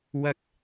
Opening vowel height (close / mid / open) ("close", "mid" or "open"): open